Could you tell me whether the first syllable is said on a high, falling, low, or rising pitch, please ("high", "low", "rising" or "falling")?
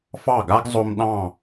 falling